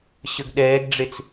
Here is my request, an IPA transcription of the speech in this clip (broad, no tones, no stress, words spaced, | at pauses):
ɕəɡɗɛːɡɖ͡ʐet͡s